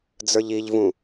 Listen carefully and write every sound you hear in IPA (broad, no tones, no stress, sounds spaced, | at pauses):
d͡z ə˞ ʎ i ʎ v ũ